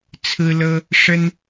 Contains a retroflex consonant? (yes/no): yes